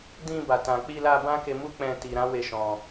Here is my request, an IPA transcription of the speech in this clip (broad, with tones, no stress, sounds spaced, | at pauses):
d ĩ˧ b a˨ t ã˨ k͡p i˧ l a˧ b ã˦ k e˧ m u˦ k͡p ɛ̃˧ t i˨ ɾ ã˨˦ w e˦˨ ʃ ɔ̃˧